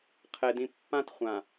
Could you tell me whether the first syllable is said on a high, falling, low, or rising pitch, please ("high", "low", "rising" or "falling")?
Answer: low